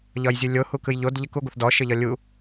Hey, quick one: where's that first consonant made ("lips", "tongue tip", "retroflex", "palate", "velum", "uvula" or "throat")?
palate